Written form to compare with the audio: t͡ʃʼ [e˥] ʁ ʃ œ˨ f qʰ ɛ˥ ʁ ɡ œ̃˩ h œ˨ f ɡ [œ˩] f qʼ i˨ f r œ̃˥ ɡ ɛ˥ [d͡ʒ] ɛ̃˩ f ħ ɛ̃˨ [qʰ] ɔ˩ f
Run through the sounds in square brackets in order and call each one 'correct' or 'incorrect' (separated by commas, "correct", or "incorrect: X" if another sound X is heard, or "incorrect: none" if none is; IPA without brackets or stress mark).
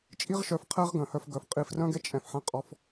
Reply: incorrect: i˥, correct, incorrect: t͡ʃʼ, incorrect: qʼ